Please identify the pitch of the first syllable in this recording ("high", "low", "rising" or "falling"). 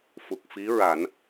low